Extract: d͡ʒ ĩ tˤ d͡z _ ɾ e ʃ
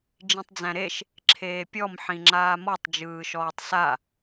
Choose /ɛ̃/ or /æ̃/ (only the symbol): æ̃